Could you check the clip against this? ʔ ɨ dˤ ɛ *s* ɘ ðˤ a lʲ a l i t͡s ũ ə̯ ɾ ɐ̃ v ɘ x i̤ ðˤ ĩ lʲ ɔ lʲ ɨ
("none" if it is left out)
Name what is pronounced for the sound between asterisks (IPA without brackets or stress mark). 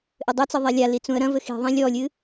t͡s